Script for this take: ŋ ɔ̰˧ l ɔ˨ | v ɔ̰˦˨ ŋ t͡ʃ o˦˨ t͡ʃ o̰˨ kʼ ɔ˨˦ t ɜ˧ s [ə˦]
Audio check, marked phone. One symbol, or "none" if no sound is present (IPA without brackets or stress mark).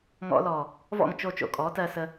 ə˧